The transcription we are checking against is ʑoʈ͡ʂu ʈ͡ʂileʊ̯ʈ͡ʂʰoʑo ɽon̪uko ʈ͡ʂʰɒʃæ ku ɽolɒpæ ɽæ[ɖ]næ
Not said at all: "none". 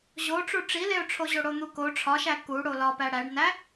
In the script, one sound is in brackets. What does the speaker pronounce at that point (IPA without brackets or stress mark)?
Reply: ɖ